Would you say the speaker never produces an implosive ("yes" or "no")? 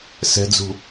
yes